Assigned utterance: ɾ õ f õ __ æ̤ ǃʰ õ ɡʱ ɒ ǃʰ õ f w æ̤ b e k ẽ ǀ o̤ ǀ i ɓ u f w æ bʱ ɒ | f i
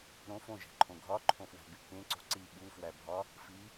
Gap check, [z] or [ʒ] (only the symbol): ʒ